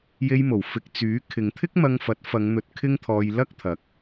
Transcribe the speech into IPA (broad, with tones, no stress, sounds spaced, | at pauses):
j e˧ j m o˨˩ w f ɪ˨ k̚ t͡s yː˨˥ kʰ ɪ˨˧ ŋ t̪ʰ ɪ˥ k̚ m ɐ˧ ŋ f ɐ˨˥ t̚ f ɐ˨˧ ŋ n̪ ɵ˨˥ t̚ kʰ ɪ˥ ŋ t̪ʰ ɔː˧ j l ɐ˥ k̚ t̪ʰ ɐ˨˥ k̚